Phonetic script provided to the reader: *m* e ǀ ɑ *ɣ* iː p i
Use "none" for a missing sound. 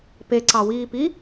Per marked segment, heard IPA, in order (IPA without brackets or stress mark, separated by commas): p, w